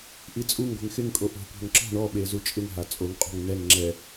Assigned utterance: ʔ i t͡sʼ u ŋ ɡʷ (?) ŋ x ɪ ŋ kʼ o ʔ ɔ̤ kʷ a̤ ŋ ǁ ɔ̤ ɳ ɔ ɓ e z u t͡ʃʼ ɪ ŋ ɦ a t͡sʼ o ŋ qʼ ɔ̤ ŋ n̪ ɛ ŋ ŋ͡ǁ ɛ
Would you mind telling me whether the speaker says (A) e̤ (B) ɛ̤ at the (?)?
A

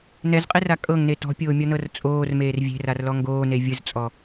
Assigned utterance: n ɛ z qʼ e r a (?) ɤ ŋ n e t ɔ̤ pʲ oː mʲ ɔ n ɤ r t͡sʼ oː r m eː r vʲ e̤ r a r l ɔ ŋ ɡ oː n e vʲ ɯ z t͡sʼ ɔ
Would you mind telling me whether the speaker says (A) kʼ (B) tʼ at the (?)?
A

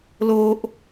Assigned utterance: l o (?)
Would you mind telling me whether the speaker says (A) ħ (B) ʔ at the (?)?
B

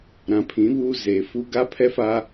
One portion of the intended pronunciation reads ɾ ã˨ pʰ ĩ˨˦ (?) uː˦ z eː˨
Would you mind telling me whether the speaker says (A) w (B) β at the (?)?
B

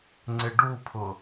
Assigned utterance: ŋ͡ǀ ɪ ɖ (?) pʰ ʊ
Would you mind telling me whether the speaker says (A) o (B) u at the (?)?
B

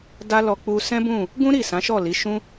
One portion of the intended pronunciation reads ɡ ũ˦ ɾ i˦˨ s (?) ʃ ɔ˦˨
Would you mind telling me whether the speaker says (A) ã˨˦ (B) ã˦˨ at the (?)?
A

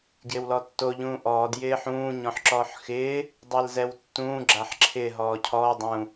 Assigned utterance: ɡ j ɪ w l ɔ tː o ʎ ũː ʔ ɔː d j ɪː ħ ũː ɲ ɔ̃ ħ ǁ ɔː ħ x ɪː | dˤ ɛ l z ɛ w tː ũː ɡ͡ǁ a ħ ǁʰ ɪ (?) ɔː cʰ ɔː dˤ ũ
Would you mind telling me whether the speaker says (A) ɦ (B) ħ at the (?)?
A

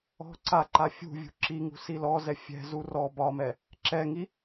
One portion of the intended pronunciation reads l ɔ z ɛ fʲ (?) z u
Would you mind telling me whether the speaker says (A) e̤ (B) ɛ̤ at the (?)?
B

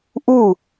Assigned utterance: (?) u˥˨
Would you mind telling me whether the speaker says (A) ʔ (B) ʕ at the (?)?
A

